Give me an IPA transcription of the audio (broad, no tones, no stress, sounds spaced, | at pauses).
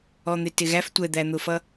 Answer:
ɔ n̪ ɪ t ɪ ɣ æ f tʷ ɛ d̪ æ n̪ ʊ f ʌ